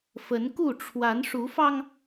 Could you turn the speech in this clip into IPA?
f ə˨˦ n k u˥˨ ʈ͡ʂʰ w a˨˦ n ʂ u˨˦ f ɑ˧ ŋ

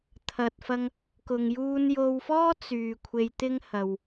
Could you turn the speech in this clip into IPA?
t̪ʰ ɐ˨ t̚ f ɐ˧ ŋ | k ʊ˨ ŋ j uː˧ n j o˧ w f ɔː˥ t͡s yː˧ kʷʰ e˧ j t̪ ɪ˥ ŋ h ɐ˧ w

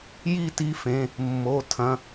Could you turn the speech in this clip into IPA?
j i˦˨ t i˨˥ f ẽ˩˧˩ | mː o˩˧˩ tʰ ɐ̃˩˧˩

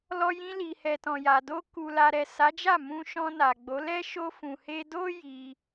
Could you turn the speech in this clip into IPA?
l ɔ˧ j ĩ˧ l i˨ h ɛ˨ t ɔ̃˨ j a˨ d o˧ k u˨ l a˨ ɾ ɛ˨ s a˨˦ d͡ʒ a˦˨ m ũ˧ ʃ ɔ̃˧ n a˨ ɡ͡b o˨˦ l ɛ˦ ʃ o˧ f ũ˨ h e˧ d o˦ j i˧

